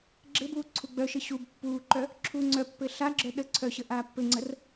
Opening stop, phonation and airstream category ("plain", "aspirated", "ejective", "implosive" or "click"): click